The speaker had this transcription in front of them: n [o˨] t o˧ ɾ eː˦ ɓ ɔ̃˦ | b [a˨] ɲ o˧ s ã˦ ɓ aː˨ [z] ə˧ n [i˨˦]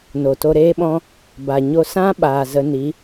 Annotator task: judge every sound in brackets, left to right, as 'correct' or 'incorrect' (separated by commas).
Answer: correct, correct, correct, correct